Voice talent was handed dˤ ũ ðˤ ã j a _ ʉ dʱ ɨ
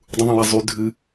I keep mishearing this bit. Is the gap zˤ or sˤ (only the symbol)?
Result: zˤ